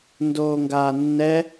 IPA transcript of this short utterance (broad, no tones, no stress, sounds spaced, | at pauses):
n d oː ŋ ɡ aː nː ɛ